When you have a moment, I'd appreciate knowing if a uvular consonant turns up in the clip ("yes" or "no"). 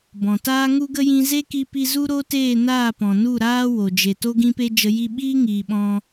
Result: no